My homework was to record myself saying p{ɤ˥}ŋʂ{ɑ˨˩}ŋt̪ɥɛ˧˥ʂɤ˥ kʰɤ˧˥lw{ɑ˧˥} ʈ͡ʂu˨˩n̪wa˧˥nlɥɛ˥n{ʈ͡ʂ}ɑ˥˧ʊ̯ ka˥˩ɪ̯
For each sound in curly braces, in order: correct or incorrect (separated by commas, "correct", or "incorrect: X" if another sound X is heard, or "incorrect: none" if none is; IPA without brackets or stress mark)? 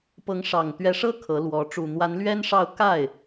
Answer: incorrect: ɤ˧˥, correct, incorrect: ɔ˧˥, incorrect: ʂ